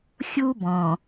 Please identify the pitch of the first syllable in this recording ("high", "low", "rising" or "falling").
high